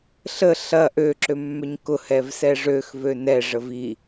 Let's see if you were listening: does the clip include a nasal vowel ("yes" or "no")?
no